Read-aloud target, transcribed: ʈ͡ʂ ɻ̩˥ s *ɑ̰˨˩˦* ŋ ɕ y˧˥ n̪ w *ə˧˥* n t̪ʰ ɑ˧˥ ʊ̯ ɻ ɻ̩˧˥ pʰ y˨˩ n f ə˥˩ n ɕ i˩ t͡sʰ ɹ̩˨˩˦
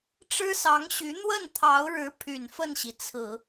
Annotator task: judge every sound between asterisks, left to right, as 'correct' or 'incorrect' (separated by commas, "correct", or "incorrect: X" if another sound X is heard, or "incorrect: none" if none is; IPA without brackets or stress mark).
incorrect: ɑ˧˥, incorrect: ə˥˩